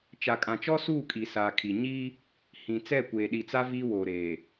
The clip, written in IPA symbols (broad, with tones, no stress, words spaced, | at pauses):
t͡ʃa˨kʼã˨t͡ʃɔ˦suː˦˨ kʼi˨saː˨kʰi˨ ɲi˦ | hĩ˨ t͡sɛ˦˨kʷeː˨ɗi˨t͡sa˦ viː˦woː˨ɾeː˨